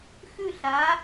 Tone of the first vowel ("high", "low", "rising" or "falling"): falling